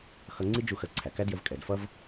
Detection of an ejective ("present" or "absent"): present